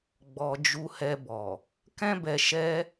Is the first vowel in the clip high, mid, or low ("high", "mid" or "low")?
mid